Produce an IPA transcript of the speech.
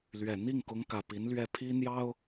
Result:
l ɥ ɛ˨˩ n̪ i˥˩ ŋ k ʊ˧˥ ŋ k ä˨˩ p i˧˥ n l ɥ ɛ˥˩ pʰ i˥ n̪ j ɑ˥ ʊ̯

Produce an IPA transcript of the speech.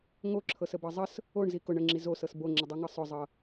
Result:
ŋ o ǁʰ ɤ s ə b ɤ zˤ ə s | o ɳ z i k ʊ ɳ ə ŋ͡ǁ i z o s ɤ s b o ŋ͡ǁ ə dˤ o ŋ ɤ sˤ ʊ zˤ ɤ

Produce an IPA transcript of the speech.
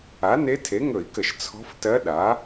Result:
a˩˥ n e˧˥ tʰ e˩˥ ŋ ɵ˧˩˧ i̯ k ə˧˩˧ ʃ t͡sʰ ɔ̤˧˥ f t ɜ˧˥ ɗ a˩˥

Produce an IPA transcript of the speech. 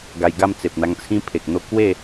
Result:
ɡ a˧ j ɡ a˥˧ m t͡s e˨ p̚ n̪ a˧ ŋ t͡sʰ ĩ˦ pʰ e˨ k̚ n̪ o˥˧ k w e˥˧

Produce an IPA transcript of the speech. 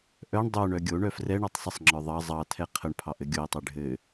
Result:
ʔ œ ɳ dˤ œ ɳ œ ɡʲ o ɳ œ f r ɛ ɳ ə˞ tˤ sˤ ə sˤ ŋ͡ǁ ə˞ ðˤ ɑ zˤ ɑ tʰ ɛ qʰ ə ɳ pʰ ɑ ʔ ɘ ɡʲ o i̯ tˤ ɛ ɖʱ ɘ

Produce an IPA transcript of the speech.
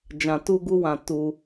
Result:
d͡ʒ ã˧ t u˦ ɡ u˦ w ã˧ t u˧

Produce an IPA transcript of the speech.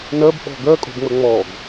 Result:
n ɜ b ɓ ɔ̤ ɡ ɜ kʼ o̤ b ŋ͡m ə ŋ͡m ɔ ɡ

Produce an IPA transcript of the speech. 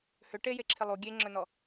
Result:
h ʏ ʈ e j e ǁʰ ɪ lˠ u ɡʲ e ŋ͡ǁ œ n ɔ

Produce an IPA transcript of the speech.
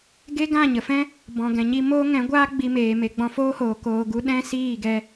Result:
ɡ e˦ ɡ ã˦˨ ɲ ə˨ f ɛ̃˦ | b ɔ̃˨ ɡ ɛ̃˨ ɲ i˧ m oː˦ ŋ ɛ̃˨˦ ɡʷ aː˦ ɡ͡b i˧ m eː˨ m e˨ ɡ͡b ɔ̃˧ f oː˦ h oː˨ k oː˧ ɡ u˦ ɗ ɛ̃˦ s iː˦˨ ɡ ɛ˧

